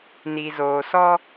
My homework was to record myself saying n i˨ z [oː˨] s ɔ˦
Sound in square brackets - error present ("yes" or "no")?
no